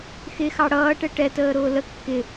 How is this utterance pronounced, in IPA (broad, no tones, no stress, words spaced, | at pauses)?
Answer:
xɪxɑ ɽʌːʈɛ ʈɛtəːɾʊː lə kːɪ